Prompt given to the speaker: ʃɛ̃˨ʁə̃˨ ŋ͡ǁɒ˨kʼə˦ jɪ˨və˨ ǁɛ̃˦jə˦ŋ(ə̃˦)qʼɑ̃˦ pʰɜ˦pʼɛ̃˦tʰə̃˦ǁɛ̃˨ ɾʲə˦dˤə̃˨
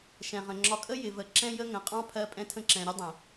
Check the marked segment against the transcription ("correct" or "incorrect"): incorrect